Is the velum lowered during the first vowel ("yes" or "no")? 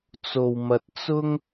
no